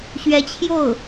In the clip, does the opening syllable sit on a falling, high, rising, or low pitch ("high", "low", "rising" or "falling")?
rising